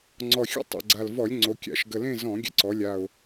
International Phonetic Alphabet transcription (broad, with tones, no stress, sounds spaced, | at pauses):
ŋ͡ǀ ɔ˨˩ xʲ o̰˥˨ tˤ ḛ˨˩ ɡ͡ǀ a˨˩ l v ɔ˧˩˧ lʲ ŋ͡ǀ o˩˧ kʲ a̰˧˩˧ ʃ ɡ ə˨˩ l ẽ˥˨ z ɔ̃˧˩˧ ɡʲ ə̰˧˩˧ ǀ ɔ˩˧ lʲ a˨˩ ʊ̯